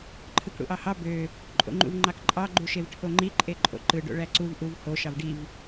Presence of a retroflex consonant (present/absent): present